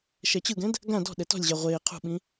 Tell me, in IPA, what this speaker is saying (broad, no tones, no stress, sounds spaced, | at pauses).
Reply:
ʃ ɛ t͡ɕ ɯ ɡ ɛ̃ d | ɡ ã d ɔ̤ ɗ ɛ t ɔ̤ lʲ ʑ a ʁʷ eː qʰ ṳ ɓ ĩ